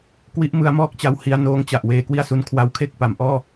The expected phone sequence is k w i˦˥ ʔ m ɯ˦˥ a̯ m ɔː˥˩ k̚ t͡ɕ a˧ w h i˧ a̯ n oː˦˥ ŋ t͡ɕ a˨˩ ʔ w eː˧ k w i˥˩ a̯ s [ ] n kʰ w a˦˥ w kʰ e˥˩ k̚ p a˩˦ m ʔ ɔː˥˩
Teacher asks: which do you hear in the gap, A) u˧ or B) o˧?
A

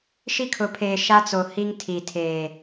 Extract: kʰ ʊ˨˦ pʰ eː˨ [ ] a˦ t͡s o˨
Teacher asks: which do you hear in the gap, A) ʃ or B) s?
A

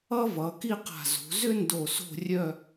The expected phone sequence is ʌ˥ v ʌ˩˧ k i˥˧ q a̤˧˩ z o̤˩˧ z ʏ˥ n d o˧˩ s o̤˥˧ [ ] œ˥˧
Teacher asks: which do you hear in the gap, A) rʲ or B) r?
A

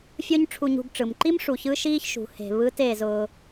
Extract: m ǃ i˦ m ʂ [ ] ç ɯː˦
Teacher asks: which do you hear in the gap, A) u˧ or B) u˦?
A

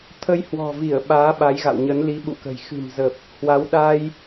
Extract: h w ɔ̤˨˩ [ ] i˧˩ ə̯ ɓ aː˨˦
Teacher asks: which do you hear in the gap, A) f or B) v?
B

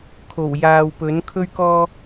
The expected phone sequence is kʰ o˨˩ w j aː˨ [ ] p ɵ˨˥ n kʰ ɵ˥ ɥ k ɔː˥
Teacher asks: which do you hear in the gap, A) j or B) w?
B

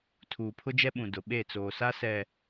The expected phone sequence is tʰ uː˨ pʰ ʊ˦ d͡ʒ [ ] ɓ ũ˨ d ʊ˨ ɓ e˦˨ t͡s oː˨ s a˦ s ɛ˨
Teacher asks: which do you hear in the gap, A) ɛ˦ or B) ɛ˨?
A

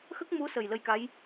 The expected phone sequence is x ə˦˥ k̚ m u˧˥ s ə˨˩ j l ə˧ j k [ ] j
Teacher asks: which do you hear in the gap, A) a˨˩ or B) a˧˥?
B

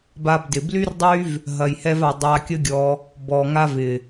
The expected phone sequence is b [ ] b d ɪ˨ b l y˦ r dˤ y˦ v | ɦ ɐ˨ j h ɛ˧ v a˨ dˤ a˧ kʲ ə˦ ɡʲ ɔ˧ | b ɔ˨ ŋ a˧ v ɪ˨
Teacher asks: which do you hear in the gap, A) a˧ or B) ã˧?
A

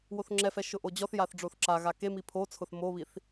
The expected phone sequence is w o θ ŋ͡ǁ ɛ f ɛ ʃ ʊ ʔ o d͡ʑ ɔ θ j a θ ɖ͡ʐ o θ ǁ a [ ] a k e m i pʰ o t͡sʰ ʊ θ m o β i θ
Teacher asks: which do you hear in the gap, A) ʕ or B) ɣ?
B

